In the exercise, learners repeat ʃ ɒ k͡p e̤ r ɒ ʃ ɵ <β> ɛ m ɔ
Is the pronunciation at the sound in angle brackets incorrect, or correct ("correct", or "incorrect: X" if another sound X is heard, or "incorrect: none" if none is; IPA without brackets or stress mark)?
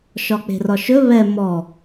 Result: correct